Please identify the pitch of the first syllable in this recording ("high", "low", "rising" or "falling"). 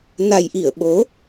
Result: low